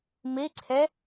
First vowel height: high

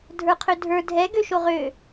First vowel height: mid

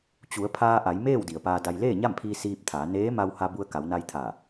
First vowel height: high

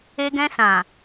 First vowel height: mid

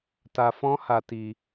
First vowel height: low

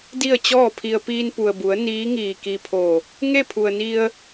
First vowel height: high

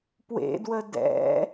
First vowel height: mid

